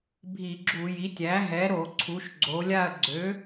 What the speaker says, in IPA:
bʱi˧˩˧ɡ͡ǁu˧˩˧ji˩˥tʲ æ˩˥ɦɛ˩˥ɾo˧˩˧ ǀʰu˩˧ʃɡ͡ǀo˩˧lʲa˦˨ɐ̯ɡ͡ǀø˩˥

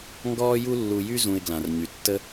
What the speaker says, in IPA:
ŋɡɔː˥ju˥lːu˧jy˥ zũ˧ɪ̯ɡlã˩rɲy˩ tːə˥

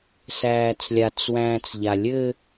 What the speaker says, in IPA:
sæːt͡slʲat͡s wæ̃ːt͡sʎalʲɘ

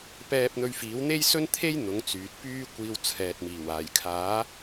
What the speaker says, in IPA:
pɛː˧p̚n̪ɵ˧ɥfiː˨˥w n̪e˥jsɵ˥nt̪ʰe˥j n̪ʊ˨˥ŋt͡syː˨t̚pyː˥ kʷiː˧wt͡sʰɛː˨t̚miː˨˩w aː˨˩jkʰaː˨˥

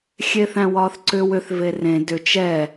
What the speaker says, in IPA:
xʲeθæ̃wɒːθǀʏ wʏθ verẽ dʏ t͡ʃɛ

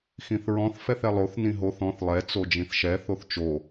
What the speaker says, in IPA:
xĩθɹɔ̃θ fɛθɛlˠoθ nĩɦoθ ɔ̃θ lˠɛ t͡sod͡ʒĩθʃɛ θoθt͡ʃo

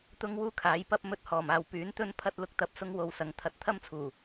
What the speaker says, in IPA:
t̪ʊ˥ŋwuː˥kʰaː˨˥jpɐ˥p̚ mɵ˧t̚hɔː˨˩maː˨w pyː˨˥nt̪ɵ˥npʰɐ˥t̚ lʊ˥k̚t̪ɐ˧p̚sʊ˥ŋ wo˧wsɐ˨˥ŋ t̪ʰɐ˧t̚ t̪ʰɐ˥mt͡sʰuː˨˩

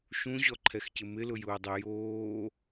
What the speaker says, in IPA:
ʃũʑɔǃʰɛxcɪ mɪlʊjʊːdˤe joː

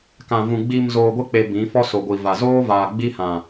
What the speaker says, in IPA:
kã˨vũ˨ ɡ͡bi˨m zoː˨ɡʷɪ˦k͡pe˨ bĩ˨˦ fɔ˦so˨ɡʷi˨ va˨zoː˦ vaː˨ ɡ͡bi˦hã˨

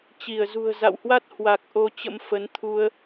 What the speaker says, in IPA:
t͡ɕi˧˩ə̯zṳ˨˩ə̯ za̰˧˨whwa˦˥t̚ hwa˨˩k̚ ʔo˧t͡ɕə̰˧˥m fə˨˦n t̪ʰu˧ə̯

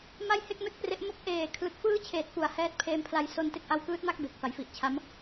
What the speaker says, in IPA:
ma˥˩jhe˥˩k̚me˥˩k̚pre˦˥ʔ mo˦˥k̚ ʔeː˨˩kʰlɯ˨˩k̚ fɯː˥˩t͡ɕʰeː˨˩t̚ pu˩˦a̯hɛː˦˥t̚pʰeː˦˥mpʰla˧j so˧nte˥˩k̚ ʔa˧wkɯː˦˥t̚ma˥˩k̚ be˨˩k̚fa˩˦jfi˨˩ʔt͡ɕʰa˦˥m

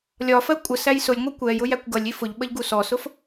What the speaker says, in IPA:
lʲɒfɜ kʷʼəsæj sʊlʲŋʷɛ kʷɛjʊ jækʷɡʌlʲi fʊʎɓəʎ ɡusɔsʊf

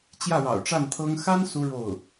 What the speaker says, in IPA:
t͡ɕjä˥˩ɻɑ̰˨˩ʊ̯ʈ͡ʂa˥˩nt̪ʰɤ˥ŋ xa˥n su˥ɻo˥˩ʊ̯

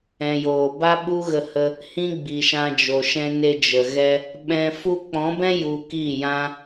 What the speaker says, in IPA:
ɛ̃˨joː˨ ba˦ɓu˦ɣə˧hə˧ | hĩ˦ɡ͡bi˨ʃã˧ d͡ʒo˨ʃɛ̃˧ne˧ d͡ʒə˨ɣɛ˧ | ɓɛ̃˧ fu˧k͡pɔ̃˨˦bɛ̃˦ ju˧ki˦˨ jã˦

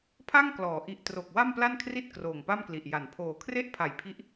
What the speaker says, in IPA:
pʰa˥˩ŋklɔː˩˦ ʔi˨˩ʔ tro˨˩k̚ wa˥˩mpla˥˩nkʰri˥˩t̚ kroː˨˩ŋpa˥˩mkli˨˩ʔ ja˩˦npʰoː˨˩ kʰre˥˩ʔpʰa˨˩jpʰi˦˥ʔ

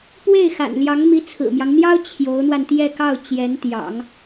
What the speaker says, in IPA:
pwe˥˩ɪ̯xa̰˨˩nljɑ˧˥ŋ mi˧˥t͡sʰɹ̩˨˩mjɑ˦ŋn̪jɑ˥ʊ̯ t͡ɕʰjo˧˥ʊ̯n̪wa˧nt̪jɛ˥˧kɑ˥˩ʊ̯ t͡ɕjɛ˧˥nt̪jɑ̰˨˩˦ŋ

